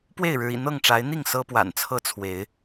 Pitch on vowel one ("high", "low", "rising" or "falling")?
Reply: falling